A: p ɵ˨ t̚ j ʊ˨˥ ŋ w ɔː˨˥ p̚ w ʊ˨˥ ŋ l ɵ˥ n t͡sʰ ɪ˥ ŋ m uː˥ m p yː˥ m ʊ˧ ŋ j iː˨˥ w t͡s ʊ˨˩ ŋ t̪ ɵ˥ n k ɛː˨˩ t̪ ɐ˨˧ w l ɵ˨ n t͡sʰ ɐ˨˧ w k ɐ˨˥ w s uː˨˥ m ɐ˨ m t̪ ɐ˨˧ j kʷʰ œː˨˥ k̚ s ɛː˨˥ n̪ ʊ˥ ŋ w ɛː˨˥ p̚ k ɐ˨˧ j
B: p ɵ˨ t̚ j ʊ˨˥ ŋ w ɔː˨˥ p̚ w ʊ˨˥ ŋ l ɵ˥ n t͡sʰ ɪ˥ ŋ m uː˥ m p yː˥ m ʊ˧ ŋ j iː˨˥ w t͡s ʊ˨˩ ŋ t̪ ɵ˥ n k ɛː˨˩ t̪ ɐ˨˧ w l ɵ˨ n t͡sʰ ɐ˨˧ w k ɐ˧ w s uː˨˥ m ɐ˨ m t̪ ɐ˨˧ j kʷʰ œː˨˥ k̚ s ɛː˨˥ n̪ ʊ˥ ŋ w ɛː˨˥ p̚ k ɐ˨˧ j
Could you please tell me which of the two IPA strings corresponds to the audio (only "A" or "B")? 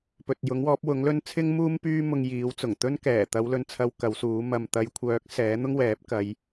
A